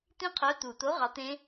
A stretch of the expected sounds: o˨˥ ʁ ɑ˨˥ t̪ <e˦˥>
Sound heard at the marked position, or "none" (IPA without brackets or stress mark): ẽ˦˥